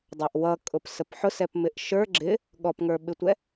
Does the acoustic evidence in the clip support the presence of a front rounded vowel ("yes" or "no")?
no